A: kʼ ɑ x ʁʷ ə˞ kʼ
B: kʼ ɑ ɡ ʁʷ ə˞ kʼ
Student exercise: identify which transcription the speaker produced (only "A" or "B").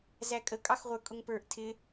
A